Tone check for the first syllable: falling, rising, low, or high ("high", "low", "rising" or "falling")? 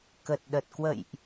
low